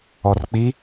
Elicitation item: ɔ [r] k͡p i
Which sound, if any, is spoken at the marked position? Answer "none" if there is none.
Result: r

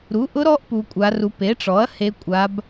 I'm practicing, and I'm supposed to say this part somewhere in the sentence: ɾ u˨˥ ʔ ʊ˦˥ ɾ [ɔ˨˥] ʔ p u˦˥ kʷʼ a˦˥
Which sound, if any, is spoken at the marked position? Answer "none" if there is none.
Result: ɔ˦˥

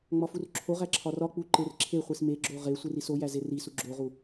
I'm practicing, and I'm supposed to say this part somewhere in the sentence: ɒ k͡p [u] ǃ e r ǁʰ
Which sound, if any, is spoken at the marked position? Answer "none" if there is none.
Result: u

